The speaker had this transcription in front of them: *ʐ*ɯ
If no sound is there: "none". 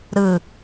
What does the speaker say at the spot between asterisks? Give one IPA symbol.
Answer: ɾ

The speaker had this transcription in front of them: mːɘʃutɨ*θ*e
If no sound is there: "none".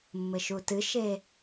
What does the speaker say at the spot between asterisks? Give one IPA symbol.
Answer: ʃ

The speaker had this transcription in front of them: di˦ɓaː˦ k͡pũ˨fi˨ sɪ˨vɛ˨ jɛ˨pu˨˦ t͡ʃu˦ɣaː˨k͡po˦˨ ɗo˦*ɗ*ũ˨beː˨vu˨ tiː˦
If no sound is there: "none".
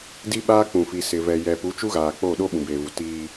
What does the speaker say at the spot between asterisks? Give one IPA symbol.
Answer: ɓ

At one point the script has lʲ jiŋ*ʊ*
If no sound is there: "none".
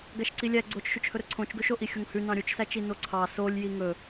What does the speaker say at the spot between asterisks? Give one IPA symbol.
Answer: ɵ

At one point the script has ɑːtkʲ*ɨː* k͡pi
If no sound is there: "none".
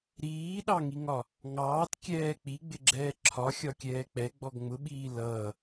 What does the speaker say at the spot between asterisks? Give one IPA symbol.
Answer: ɛː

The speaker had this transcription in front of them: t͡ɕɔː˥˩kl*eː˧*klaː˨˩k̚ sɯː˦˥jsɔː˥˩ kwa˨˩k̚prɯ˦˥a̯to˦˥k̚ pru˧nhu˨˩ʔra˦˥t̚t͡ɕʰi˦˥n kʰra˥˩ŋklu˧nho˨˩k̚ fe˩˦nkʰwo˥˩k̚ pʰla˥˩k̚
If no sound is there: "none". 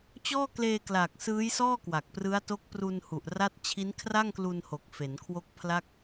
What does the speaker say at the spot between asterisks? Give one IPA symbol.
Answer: eː˧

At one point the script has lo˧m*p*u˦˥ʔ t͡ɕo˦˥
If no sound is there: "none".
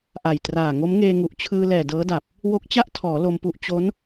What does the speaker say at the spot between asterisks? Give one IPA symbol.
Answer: p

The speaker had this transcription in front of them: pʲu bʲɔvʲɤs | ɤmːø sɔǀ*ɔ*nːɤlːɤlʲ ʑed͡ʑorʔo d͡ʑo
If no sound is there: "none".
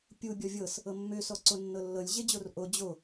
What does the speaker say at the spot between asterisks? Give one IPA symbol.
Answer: o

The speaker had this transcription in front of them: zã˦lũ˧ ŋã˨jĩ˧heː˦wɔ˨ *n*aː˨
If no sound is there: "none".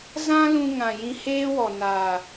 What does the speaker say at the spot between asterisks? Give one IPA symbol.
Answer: n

